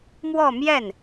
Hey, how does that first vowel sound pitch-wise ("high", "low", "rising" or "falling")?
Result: falling